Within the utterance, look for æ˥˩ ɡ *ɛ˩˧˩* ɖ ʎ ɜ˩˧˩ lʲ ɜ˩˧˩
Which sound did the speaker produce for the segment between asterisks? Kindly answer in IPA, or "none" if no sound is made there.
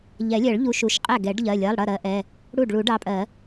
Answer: ɛ˨˩˦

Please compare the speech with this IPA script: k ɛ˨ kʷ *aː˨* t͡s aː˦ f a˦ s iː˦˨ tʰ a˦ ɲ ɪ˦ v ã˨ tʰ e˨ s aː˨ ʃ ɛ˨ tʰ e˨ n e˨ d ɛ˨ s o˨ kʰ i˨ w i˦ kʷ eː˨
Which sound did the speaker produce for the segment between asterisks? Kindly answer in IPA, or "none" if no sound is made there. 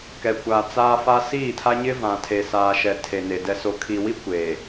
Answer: aː˨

